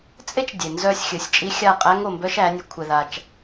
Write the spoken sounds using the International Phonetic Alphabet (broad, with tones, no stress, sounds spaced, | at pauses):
t͡sʼ e˦ t͡ʃ dʲ e˨ n z œ˧ sʲ xʲ ɘ˨˦ sʲ t͡ʃʼ i˦ xʲ a˦˨ qʼ æ˦ ŋ o˧ m b œ˦ ʃ æ˨˦ nʲ œ˧ kʷʰ ɛ˧ ð a˧ t͡ʃ